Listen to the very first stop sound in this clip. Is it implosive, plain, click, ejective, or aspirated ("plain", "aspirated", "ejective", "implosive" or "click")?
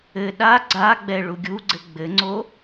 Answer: implosive